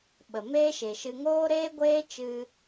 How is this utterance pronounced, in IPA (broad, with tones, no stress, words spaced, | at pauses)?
ɓə˨meː˦ʃe˨ʃɨ˧ ŋoː˦ɾeː˦ɡʷeː˦t͡ʃɨ˧